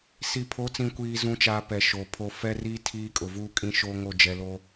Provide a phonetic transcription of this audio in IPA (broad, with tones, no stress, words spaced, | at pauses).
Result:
si˨pʰo˨˦t͡sĩ˨kʷiː˨ zũ˦t͡ʃaː˦pɛ˨ʃoː˨ pʰo˨ fɛ˦riː˦ tʰiː˦kʼʊ˨ vuː˦kʼĩ˦ ʃoː˦ŋo˦˨ d͡ʒɛ˨loː˦